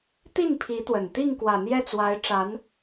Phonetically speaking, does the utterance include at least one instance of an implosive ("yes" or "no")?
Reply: no